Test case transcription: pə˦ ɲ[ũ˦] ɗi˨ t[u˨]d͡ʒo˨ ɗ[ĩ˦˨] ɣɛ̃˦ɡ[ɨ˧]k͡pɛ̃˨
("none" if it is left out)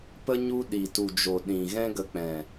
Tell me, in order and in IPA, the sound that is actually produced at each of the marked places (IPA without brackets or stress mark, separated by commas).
u˦, u˨, ĩ˨, ə˧